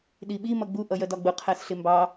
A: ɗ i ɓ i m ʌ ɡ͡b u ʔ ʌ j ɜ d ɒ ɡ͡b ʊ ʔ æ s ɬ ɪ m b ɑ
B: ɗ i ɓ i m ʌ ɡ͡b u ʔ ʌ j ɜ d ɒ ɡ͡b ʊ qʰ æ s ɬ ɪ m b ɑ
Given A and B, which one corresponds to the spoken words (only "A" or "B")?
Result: B